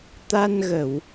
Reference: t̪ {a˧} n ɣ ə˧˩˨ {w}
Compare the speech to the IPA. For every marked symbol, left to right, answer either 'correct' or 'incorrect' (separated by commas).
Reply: correct, correct